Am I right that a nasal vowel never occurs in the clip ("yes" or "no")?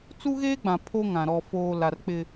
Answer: no